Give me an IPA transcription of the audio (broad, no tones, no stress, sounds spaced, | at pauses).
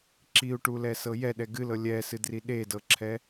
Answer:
ǁ i u̯ ʈ u l ɛ s ɤ j ɛ ɗ ɛ ɡ ɨ l ɤ lʲ ɛ s ɨ d r i ɗ e d ɤ ǁʰ ɛ